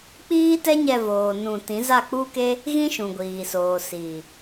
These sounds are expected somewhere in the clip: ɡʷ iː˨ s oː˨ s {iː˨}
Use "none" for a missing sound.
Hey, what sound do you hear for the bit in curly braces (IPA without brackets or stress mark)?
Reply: iː˨